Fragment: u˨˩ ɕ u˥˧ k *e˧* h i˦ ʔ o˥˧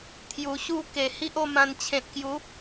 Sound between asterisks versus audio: incorrect: e˨˩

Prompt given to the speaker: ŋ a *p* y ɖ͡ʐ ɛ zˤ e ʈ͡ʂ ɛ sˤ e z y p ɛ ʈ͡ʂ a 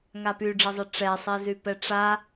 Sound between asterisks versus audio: correct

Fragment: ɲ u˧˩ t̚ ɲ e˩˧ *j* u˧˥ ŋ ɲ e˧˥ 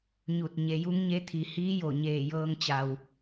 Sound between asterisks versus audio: correct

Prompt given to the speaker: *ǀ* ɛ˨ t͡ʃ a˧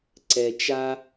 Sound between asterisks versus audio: correct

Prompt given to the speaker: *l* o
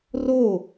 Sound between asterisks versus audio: incorrect: r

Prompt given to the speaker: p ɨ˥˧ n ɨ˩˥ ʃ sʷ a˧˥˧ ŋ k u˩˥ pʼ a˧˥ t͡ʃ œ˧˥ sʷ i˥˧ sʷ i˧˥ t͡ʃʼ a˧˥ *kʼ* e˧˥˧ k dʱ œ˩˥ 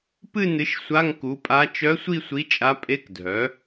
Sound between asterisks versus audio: incorrect: pʼ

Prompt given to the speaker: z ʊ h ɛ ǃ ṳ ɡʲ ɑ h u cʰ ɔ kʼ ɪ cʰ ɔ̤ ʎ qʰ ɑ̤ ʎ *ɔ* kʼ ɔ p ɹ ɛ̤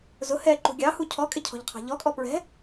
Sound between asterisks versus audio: correct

